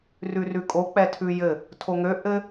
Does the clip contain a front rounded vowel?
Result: yes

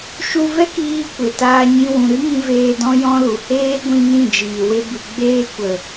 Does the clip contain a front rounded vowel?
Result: no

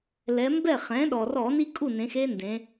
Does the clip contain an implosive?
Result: yes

